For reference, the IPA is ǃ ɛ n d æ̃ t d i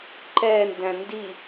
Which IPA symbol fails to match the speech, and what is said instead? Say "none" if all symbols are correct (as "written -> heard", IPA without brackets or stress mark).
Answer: t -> n